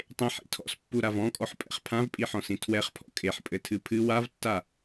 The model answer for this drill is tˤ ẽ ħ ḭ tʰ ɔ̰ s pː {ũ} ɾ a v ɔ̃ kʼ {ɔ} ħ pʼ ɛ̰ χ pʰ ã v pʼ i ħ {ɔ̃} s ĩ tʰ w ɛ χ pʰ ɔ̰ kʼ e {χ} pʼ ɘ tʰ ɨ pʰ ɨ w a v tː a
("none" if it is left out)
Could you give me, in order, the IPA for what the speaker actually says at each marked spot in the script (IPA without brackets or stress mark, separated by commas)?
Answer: u, ɔ, ɔ̃, ħ